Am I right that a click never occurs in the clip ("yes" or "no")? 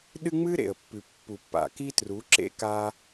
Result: no